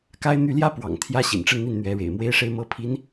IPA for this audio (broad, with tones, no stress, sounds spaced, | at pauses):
k a˥ ɪ̯ n̪ y˥˩ l j ä˥ p w ɑ̰˨˩ ŋ t̪ʰ j ä˥ ɕ ḭ˨˩ n ʈ͡ʂ ə˥˧ n n̪ i˥˩ n n̪ ɥ ɛ˧˥ ɻ ḛ˨˩ ɪ̯ m w e˥ ɪ̯ ʂ e˥ ɪ̯ m ɤ˥ pʰ i˧˥ n